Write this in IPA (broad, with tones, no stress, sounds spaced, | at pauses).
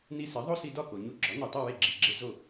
n i˧ s e˩˥ ðˤ o˥ s i˧ d ɒ˥˩ k o˩ ɲ u˧ ɡ͡ǁ ɒ˩˥ n i˩ tˤ i˥˩ w e˥˩ ɡ͡ǁ i˩ ɡ͡ǁ e˧ z o˥˩